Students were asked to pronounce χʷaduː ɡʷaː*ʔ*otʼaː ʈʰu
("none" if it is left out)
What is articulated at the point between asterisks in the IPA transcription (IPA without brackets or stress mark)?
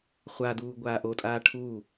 ʔ